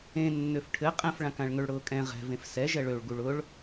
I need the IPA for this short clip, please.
ẽ nː ø f ʈʰ ɘ qʼ ɛ̃ f ɭ ã k ã ɭ ŋ ø ɭ ɽ ʊː kʼ ɛ̃ ʁ ɛ̤ v ẽ f s ɛ ʒ ɛ ɭ ø ɭ ɡ u ɭ ʊ ɭ

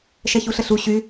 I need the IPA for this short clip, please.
ʃ ɛ ç u ɬ ə ɬ u ɕ y

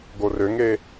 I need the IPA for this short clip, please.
ɡ o r ø ŋ e

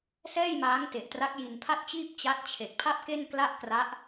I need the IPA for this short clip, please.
s ɛː˥˩ j m aː˦˥ ŋ t e˨˩ ʔ t r a˦˥ k̚ j i˧ n pʰ a˥˩ t̚ t͡ɕ iː˥˩ p̚ t͡ɕ a˦˥ t̚ t͡ɕʰ e˨˩ k̚ pʰ a˥˩ p̚ k e˥˩ n k l a˥˩ ʔ k r a˦˥ ʔ

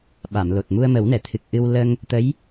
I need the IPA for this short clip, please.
ɓ a˨˩˨ m l o˨˩ t̚ m u˧ ə̯ m ə˨˩˦ w n ɛ˨˩˨ t̪ʰ ɨ˨˩ k̚ ʔ ɨ˧ w l ə˧ ŋ | t̪ ə˧˥ j

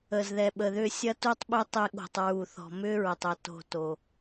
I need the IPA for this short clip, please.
əː˨ z ð ɛ˨ ɓ ə˨ ð ʏː˦ sʲ ɐ˦ t u˦ tˤ ɓ ʏ˦ tˤ e˧ ɠ o̤˨ tˤ ɹ u˨ θ ɔ̤˨ m ʏː˦ ɹ ə˨ tˤ œ˧ t o̤˦˨ t o˨

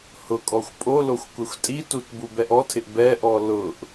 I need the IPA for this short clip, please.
h ʊ kʼ ɔ xʷ pʼ o l o xʷ kʷ ɛ xʷ tʼ i t u t b u b ɛ ʔ ɔ tʰ ɪ ʔ b ɛ ʔ ɔ l ʊ ʔ

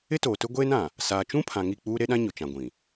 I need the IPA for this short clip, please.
ɪ˦ t oː˨ t ʊ˦ ɡʷ eː˦ n ã˨ | s aː˨ t͡ʃ ũ˦ pʰ ã˨ ŋ i˦˨ k͡p uː˦ ɾ e˦ ɗ ã˦ ɲ ʊ˨ t͡ʃ ã˨ ɡʷ ĩ˨

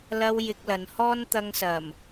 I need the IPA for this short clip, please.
l ɐ˧ w j ɪ˧ k̚ l ɐ˨˧ n h ɔː˥ n t̪ ɐ˧ ŋ s ɐ˨˩ m

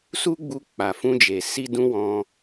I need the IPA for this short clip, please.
s u˦ ɡ͡b u˧ k͡p a˨ f ũ˧ d͡ʒ e˨ s i˧ d ũ˧ w ɔ̃˧

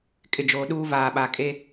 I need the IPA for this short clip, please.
kʼ ɪ˨ d͡ʒ oː˨ ɗ uː˦ v aː˨ ɓ a˨ kʼ e˦

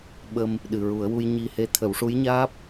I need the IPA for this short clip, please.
ɓ ə˧ m | ɗ ɨ˨˩ ɹ u˨˩˦ ə̯ w u˧ j ɲ i˧ h e˧˥ t̪ʰ ə˨˩˦ w ʂ u˧˥ j ɲ aː˦˥ p̚

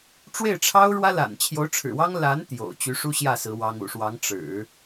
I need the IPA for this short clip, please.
ʈ͡ʂ w e˥˩ ɪ̯ ʈ͡ʂʰ ɑ˥ ʊ̯ ɻ w ä˥ l a̰˨˩ n t͡ɕʰ j o˧˥ ʊ̯ ʈ͡ʂʰ ɻ̩˨˩ w ɑ˥ ŋ l a˧˥ n t̪ j o̰˨˩ ʊ̯ t͡ɕ y˧˥ ʂ u˥ ɕ j ä˥˩ s ɹ̩˧˥ w ɑ˥ ŋ ṵ˨˩ ʂ w ɑ˧˥ ŋ ʈ͡ʂ ɻ̩˨˩˦

